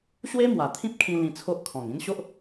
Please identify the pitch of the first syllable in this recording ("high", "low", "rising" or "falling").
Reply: high